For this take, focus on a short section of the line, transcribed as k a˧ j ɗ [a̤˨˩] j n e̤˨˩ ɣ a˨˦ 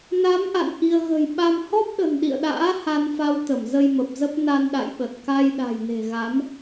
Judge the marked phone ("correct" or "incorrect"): correct